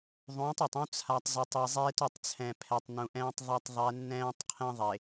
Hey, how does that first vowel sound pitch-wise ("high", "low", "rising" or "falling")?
rising